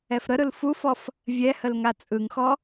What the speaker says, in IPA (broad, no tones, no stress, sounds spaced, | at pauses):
ɛ f ɾ ə ɾ ɯ l f u f ɔ f | vʲ ɛ h ə l ŋ a t͡sʼ ɯ ŋ x ɔ